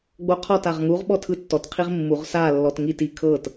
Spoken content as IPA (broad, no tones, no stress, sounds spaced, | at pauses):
ɡ͡b o qʰ ɔ t a ʁ ŋ u ʁ ɓ ɔ tʰ ɯ tː ɔ t qʰ i ʁ mː u ʁ s a lː ɔ t ŋ i t i kʰ ɤ t